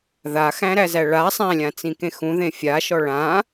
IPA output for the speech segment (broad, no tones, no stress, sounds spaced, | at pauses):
ð a x æ̃ ɾ æ z æ ɭ a sˤ æ̃ lʲ ã t͡s ĩ k ẽ x ũ ð ẽ fʲ a ʃ ɔ ɭ ã